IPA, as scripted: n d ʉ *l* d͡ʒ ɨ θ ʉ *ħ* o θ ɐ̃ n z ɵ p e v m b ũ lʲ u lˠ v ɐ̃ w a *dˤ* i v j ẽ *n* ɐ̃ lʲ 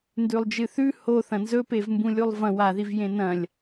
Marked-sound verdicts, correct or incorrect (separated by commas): incorrect, incorrect, incorrect, correct